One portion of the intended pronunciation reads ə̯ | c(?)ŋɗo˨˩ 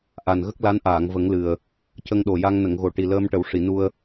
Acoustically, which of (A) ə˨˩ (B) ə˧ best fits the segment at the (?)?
B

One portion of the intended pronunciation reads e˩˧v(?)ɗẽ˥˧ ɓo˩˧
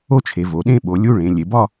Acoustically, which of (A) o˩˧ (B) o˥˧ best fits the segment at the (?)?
A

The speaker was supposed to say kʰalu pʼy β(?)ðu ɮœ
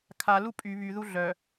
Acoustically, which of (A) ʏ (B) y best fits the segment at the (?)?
B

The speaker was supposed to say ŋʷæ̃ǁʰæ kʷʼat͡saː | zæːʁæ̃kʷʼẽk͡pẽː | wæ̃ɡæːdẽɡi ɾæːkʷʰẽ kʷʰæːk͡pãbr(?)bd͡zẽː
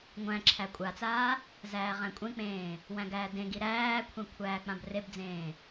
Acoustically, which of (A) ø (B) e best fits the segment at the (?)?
B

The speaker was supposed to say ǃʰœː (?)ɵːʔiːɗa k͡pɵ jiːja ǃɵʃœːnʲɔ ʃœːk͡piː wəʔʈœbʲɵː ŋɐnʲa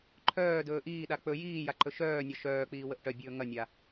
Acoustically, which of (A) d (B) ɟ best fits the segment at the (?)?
A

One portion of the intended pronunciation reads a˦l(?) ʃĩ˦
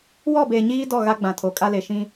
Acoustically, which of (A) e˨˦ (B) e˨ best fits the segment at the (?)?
B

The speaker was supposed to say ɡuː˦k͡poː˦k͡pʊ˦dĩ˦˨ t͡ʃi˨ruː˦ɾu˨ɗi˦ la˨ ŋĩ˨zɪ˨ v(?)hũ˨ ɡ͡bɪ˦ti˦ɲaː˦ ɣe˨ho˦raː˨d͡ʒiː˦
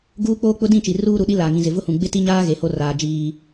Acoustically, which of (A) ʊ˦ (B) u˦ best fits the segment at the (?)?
A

